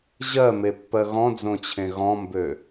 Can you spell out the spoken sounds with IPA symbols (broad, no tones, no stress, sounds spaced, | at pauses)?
ʑ ɜ m e pː ɜ ɣ ɔ̃ d͡z õ t͡ɕʰ ẽ ɣ ɔ̃ m b ø